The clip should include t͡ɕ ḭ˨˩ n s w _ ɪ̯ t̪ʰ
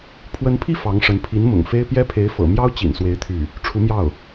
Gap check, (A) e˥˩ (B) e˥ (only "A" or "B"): B